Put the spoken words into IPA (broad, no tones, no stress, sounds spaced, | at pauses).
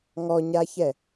ŋ ɔ ɲ a ç ɛ